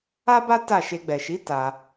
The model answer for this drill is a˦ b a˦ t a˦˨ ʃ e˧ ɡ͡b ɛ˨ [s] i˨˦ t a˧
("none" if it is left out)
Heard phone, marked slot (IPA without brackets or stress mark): ʃ